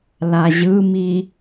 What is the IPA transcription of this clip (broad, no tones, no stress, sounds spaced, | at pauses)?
l a ʑ ɯ m i